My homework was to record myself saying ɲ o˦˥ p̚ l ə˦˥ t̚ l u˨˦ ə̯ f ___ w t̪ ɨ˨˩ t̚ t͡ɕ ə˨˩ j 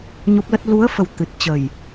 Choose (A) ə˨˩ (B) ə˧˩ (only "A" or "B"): A